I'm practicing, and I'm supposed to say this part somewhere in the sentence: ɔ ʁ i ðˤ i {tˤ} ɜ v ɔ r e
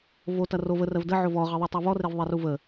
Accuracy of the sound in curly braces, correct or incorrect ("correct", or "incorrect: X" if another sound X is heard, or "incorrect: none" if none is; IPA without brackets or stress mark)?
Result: correct